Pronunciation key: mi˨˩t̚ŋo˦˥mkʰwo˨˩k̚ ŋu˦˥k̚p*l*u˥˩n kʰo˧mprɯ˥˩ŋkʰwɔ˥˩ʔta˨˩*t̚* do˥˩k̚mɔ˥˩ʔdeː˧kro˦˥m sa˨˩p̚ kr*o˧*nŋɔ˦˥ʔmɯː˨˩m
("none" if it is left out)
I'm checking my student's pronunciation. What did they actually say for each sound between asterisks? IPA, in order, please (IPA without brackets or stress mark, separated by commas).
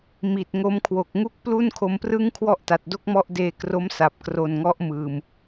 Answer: l, t̚, o˨˩